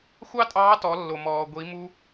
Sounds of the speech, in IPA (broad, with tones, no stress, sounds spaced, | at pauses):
xʷ ɑ˥ tʼ ɑː˧˥ t ɔ˩˧ lː o˩ m ɔː˩ ɡʷ i˩˧ m u˧